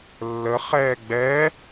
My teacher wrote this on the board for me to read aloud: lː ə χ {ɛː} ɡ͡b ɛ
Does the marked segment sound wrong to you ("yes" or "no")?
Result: no